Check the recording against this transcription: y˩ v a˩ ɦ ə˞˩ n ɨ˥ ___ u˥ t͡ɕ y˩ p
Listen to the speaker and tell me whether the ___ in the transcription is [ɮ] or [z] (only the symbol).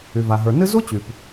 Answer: z